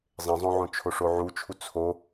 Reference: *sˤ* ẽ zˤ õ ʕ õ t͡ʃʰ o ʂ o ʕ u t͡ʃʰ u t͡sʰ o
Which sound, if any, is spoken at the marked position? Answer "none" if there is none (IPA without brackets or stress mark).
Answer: zˤ